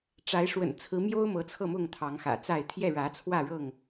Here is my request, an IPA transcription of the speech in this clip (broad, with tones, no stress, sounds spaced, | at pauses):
ʈ͡ʂ a˨˦ ɪ̯ ʂ w ə̰˨˩ n t͡sʰ ɹ̩˨˦ m j o˦ ʊ̯ m ɤ˨˦ t͡sʰ ɤ˥˨ m ʊ˥˨ ŋ t̪ʰ ɑ˨˦ ŋ x ä̰˨˩ t͡s a˥˨ ɪ̯ t̪ʰ j ɛ˥˨ ɻ ä˨˦ t͡sʰ w ä˥˨ ɻ ɤ˥˨ ŋ